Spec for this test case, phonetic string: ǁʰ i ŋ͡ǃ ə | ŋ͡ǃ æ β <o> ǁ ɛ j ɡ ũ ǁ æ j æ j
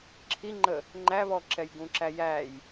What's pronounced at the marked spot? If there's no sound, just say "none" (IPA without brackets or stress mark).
ɔ